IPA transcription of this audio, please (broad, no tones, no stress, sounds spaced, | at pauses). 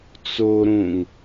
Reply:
t͡s o ɾ ũ ŋ